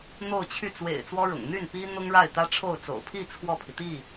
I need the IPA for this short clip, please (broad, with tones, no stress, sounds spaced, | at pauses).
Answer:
n̪ o˥˧ ʊ̯ t͡ɕʰ y˥˩ t͡s w ḛ˨˩ ɪ̯ t͡s w ɔ˥ ɻ ʊ̰˨˩ ŋ n̪ y˥˩ n p i˥ n̪ ʊ˥ ŋ ɻ a˥˩ ɪ̯ t̪ ä˥ ʈ͡ʂʰ o˥˩ ʊ̯ t͡s o̰˨˩ ʊ̯ pʰ i˥˧ t͡sʰ w ɔ˥˩ pʰ i˩ t̪ i˥˩